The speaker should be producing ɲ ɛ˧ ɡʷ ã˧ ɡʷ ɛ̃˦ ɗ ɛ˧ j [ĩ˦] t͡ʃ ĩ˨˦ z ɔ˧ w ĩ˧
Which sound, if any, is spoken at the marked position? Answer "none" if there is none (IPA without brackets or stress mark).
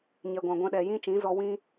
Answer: ĩ˦